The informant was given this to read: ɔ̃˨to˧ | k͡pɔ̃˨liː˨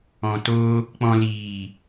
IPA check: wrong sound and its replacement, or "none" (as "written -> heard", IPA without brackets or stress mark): none